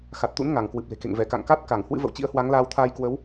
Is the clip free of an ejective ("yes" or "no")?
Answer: yes